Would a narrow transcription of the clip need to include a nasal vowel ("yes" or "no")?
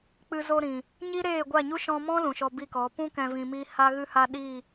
yes